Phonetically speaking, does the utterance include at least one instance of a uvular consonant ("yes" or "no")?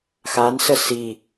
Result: no